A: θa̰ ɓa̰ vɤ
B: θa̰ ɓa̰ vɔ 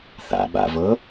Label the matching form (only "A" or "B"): A